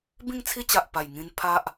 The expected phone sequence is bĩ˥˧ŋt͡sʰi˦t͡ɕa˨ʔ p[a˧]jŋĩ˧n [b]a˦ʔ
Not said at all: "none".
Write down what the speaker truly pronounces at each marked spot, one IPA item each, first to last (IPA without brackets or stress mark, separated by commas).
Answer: a˨˩, pʰ